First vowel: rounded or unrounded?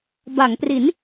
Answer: unrounded